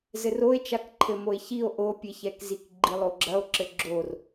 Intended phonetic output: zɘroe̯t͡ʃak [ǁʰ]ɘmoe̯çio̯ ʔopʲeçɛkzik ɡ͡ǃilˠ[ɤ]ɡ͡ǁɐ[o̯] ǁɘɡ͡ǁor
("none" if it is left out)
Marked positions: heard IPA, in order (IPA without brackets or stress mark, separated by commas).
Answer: ǃʰ, o, o̯